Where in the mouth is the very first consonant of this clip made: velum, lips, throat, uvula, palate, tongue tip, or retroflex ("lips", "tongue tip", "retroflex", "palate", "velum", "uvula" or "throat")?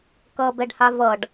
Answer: velum